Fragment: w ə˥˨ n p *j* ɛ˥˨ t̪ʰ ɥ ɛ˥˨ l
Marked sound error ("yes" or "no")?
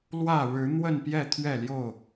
no